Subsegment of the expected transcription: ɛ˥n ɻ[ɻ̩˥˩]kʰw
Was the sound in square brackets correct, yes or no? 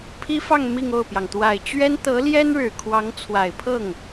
no